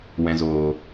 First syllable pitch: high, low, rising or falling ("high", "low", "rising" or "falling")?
low